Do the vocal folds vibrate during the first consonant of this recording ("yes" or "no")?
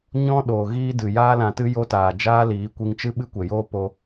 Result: yes